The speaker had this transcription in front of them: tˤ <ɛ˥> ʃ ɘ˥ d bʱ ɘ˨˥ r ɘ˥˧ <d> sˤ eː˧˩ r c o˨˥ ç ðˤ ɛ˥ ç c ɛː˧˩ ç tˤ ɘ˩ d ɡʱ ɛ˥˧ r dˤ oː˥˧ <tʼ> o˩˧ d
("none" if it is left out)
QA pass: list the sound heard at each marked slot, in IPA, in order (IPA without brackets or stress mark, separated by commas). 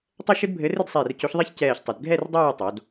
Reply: ɛ˥, d, tˤ